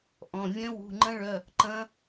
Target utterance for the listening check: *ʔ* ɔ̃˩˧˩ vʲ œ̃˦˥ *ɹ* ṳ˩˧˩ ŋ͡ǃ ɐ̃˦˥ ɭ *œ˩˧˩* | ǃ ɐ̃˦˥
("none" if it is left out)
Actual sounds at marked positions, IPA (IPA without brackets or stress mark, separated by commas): ʔ, w, œ˩˧˩